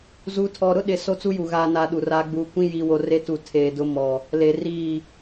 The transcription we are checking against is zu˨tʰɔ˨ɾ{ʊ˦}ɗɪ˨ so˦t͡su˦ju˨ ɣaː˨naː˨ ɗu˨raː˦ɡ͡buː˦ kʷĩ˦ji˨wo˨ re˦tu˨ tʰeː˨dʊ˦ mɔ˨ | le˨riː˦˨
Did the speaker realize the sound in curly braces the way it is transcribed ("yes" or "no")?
yes